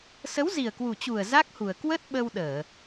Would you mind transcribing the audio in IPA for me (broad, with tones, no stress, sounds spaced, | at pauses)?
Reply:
s ə˨˦ w z i˨˩ ə̯ k w u˨˩ t͡ɕ u˨˩ ə̯ z a˦˥ k̚ h u˨˩ ə̯ k w ə˦˥ t̚ ɓ ə˧ w ɗ əː˧˩˨